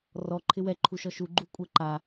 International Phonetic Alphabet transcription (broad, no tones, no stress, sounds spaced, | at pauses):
r ɔ ǃʰ ɪ w ɛ ǃʰ u ʃ ɔ ʃ u ɡ͡ǃ u kʷʼ ɛ ǃ a